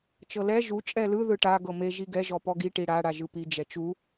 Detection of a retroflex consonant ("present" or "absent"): present